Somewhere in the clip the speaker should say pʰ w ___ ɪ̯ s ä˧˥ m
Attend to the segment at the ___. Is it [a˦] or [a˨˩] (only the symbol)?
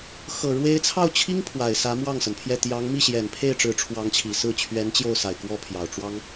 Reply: a˨˩